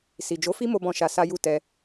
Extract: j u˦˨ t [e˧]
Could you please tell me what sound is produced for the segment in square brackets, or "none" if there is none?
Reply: ɛ˧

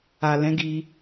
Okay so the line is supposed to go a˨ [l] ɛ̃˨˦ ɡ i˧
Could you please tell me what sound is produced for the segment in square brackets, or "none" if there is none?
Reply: l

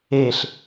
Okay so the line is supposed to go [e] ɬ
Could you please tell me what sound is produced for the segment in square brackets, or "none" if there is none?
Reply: e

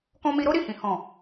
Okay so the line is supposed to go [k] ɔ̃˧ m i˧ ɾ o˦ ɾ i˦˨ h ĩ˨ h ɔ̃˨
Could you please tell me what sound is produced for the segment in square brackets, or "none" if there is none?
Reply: k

